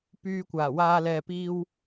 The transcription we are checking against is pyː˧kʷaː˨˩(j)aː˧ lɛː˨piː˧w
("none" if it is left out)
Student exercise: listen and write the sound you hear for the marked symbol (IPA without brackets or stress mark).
w